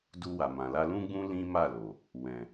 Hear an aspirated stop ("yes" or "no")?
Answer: no